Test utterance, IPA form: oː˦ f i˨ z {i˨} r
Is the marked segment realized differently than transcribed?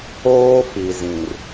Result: yes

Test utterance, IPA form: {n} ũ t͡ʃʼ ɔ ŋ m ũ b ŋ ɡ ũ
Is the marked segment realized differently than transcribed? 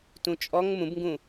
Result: yes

